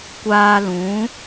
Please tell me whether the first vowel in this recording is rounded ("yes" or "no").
no